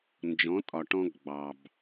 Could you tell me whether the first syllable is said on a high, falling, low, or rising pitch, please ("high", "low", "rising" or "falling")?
rising